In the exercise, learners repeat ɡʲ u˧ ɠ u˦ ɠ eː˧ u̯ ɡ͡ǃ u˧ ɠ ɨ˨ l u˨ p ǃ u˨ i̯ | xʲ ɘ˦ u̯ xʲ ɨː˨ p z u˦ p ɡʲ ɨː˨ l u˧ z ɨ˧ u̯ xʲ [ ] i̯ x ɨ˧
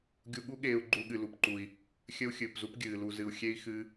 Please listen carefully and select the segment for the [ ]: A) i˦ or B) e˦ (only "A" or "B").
B